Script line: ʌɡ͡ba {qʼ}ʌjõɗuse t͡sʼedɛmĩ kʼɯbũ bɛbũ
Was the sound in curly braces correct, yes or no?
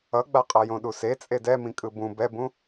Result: yes